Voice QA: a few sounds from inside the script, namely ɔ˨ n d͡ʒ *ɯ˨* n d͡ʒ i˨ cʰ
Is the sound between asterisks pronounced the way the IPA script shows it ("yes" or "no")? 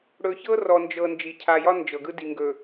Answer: no